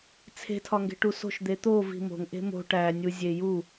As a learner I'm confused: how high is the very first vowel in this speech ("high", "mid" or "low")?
mid